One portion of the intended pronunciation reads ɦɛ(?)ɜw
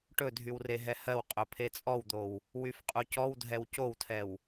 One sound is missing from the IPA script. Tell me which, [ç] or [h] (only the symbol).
h